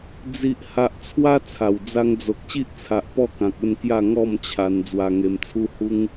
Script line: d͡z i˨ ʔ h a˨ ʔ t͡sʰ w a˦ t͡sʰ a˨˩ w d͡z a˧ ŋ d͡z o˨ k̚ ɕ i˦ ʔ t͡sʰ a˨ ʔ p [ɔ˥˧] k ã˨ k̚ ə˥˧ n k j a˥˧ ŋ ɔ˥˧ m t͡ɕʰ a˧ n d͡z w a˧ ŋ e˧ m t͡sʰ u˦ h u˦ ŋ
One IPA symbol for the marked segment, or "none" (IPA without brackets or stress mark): ɔ˥˧